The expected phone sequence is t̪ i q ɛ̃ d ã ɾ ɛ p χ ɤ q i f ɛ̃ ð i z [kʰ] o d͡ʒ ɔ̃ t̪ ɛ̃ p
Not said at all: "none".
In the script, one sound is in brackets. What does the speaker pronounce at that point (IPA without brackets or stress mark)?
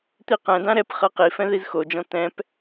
x